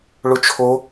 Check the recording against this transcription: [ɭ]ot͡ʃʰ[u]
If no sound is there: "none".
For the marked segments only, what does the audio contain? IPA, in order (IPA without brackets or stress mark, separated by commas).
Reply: ɭ, o